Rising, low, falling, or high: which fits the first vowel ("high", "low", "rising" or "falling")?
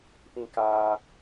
high